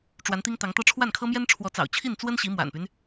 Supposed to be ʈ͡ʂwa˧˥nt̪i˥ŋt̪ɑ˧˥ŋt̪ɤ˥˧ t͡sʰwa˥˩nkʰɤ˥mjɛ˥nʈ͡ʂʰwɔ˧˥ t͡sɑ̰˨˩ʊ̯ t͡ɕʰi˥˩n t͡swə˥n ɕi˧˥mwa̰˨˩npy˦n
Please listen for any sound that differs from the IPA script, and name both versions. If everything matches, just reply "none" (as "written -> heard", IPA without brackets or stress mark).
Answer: t͡sʰ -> ʈ͡ʂʰ